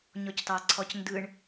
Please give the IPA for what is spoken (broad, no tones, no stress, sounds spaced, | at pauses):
ɲ ɔ c t ɑ ǀʰ ɔ c n d ɯ ɳ